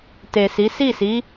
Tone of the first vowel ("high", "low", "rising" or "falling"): low